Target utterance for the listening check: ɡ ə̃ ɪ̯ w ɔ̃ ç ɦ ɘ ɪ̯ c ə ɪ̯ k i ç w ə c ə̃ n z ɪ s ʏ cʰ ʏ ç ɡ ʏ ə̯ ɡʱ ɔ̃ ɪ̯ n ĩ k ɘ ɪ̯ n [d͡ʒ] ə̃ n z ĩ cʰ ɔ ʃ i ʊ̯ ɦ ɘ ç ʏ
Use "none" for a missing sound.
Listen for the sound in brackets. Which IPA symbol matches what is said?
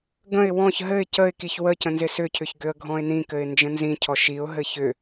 d͡ʒ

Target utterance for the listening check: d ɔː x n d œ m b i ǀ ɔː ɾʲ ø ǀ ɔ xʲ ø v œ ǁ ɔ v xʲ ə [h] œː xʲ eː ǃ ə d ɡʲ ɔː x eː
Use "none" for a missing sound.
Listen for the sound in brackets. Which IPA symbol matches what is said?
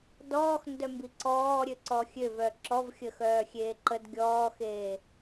x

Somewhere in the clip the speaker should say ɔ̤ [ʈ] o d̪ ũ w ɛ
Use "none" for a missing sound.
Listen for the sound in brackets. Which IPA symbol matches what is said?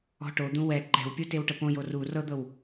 ʈ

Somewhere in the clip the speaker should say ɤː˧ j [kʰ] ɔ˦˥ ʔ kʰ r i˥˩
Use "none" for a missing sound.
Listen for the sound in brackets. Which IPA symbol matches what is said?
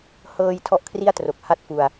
tʰ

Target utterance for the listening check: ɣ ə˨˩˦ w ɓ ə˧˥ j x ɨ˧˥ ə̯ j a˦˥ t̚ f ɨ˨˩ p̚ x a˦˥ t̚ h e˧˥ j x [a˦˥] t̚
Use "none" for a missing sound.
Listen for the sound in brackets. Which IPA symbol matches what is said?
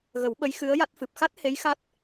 a˦˥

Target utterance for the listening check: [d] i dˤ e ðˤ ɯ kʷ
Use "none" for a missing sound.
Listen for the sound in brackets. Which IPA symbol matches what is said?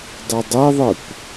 dˤ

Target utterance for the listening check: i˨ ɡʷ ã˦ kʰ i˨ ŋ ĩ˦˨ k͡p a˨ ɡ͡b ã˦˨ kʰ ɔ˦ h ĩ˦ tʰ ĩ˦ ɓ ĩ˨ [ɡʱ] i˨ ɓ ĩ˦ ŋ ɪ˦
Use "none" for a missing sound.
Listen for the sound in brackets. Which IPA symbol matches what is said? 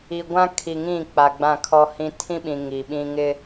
ŋ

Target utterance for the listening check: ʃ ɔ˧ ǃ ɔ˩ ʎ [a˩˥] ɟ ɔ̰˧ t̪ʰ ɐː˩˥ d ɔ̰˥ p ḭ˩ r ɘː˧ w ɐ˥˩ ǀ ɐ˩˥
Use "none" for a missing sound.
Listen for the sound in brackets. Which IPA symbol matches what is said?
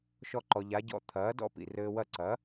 a˩˥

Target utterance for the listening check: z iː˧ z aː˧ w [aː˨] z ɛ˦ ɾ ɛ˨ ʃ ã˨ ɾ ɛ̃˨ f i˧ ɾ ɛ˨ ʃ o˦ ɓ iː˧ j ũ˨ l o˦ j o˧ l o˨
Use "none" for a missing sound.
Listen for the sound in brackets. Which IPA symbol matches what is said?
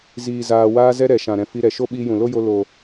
aː˦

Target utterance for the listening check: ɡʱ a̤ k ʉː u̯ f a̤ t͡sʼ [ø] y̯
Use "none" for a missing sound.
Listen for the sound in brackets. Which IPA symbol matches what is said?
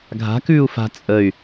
ə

